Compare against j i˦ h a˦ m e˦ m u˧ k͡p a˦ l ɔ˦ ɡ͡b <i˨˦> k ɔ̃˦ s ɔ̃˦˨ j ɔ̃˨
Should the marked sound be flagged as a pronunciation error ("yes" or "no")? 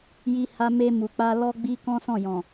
yes